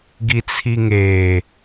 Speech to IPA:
ɡ i t͡sʰ i ŋ eː

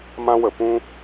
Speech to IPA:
m ã˦ w ə˧ p ũ˦

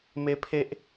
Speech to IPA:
m e˦ pʰ e˦ ʔ

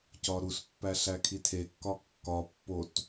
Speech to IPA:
c ɒ ɾ u s pː æ ɬ æ kʰ i tʰ e kː ɒ kː ɒ pː o t

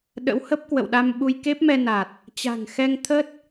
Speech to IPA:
ɗ ə̰˧˥ w h ə˦˥ p̚ k w ə̰˧˨ w ɗ a˧ m ɓ u˧ j k e˦˥ p̚ m ɛ˧ n a˨˩ t̚ | t͡ɕ a̤˨˩ ŋ x ɛ˧ ŋ t̪ʰ ə˦˥ t̚

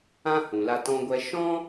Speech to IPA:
ã˦ h ũ˨ l a˧ t ɔ̃˧ ɡʷ ɛ˧ ʃ ɔ̃˦

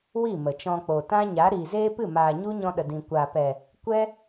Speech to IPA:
w i˦˨ m ə˨ t͡ʃ ɔ̃˧ k͡p o˨ t ã˦ ɲ a˨˦ ɾ iː˨ z eː˦ p ɨ˦˨ m aː˨ ɲ u˦ ɲ ɔ̃˧ ɗ ə˨ d ĩ˨ kʷ a˨ p ɛ˨ | kʷ ɛ˦

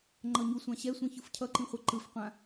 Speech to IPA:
ŋ͡ǃ ʌ ɲ u sʷ ã ɕ ɛ sʷ ĩ ç ɯ f cʰ ʌ ǃ ĩ χʷ ɛ ǃ ɯ f qʷ ã

